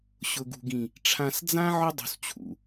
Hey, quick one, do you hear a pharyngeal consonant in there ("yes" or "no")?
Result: yes